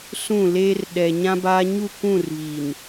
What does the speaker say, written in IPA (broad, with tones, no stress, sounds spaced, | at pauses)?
s ũ˦˨ l eː˦ r ɗ ɛ˨ ɲ ã˦ b aː˦ ɲ u˦˨ kʷ ũ˦˨ r β i˨ n